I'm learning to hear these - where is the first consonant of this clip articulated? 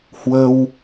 throat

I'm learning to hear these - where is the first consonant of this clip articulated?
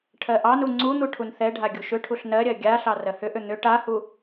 retroflex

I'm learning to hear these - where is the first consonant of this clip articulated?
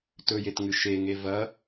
tongue tip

